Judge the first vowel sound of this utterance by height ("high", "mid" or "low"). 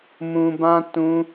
high